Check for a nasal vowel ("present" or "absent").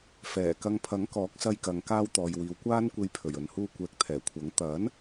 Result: absent